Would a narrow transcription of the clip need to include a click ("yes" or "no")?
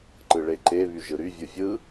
yes